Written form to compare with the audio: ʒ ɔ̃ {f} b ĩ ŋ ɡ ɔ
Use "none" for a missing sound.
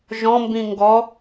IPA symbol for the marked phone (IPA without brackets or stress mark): m